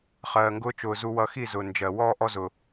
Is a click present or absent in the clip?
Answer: absent